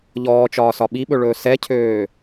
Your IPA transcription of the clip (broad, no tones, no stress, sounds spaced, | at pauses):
ʎ ɔː t͡ʃ ɒː s ɒ ɓ i ɓ ɵ ɭ ɵː s ɛ cʰ øː